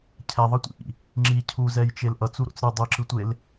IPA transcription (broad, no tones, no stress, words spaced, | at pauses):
cʰɛðˤʌtʷḭʔḭ | ŋ͡ǁi cʰuzɛjt͡ʃel ʔʌt͡suɾo̰t͡s ɾɯ dˤɯǁɯtʷel